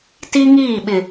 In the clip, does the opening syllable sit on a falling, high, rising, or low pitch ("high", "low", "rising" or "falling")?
high